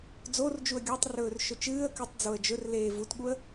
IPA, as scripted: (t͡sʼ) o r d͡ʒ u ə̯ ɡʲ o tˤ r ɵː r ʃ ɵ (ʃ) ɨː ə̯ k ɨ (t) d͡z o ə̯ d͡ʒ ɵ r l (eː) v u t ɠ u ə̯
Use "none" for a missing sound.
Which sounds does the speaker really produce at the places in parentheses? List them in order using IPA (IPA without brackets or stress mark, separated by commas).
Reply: d͡z, t͡ʃ, tˤ, eː